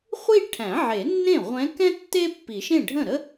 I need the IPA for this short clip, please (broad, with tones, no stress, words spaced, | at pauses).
χʷi˥˧ʈʰæ̃˨˩˦ʕe˨˩˦nːẽ˥˩ ʁʷɛ̃˧˥kɛ̃˥ tːe˥pːi˨˩˦ʃẽ˥˩ ɖʱə̃˥˩ɾə˥